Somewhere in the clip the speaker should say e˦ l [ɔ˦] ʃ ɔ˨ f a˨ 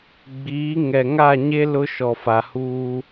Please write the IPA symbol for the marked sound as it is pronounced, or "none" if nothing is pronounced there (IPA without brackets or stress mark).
ʊ˦